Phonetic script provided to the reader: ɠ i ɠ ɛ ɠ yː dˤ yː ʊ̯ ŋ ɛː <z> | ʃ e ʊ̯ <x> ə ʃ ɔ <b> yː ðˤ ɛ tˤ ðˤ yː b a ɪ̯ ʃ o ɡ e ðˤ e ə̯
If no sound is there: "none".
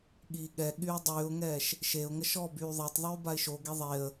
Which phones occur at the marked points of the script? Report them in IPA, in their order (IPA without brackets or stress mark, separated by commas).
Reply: ʃ, ŋ, b